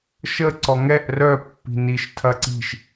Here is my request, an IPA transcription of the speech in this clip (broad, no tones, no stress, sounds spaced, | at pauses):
ʃ ə ǀ ɔ ŋ ɛ ʔ r œ pː i̤ n i ʃ tʰ ɐ ǀ i̤ ʃ